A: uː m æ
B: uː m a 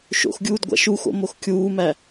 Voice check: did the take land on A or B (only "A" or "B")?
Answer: A